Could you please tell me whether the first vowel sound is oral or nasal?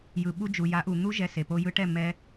oral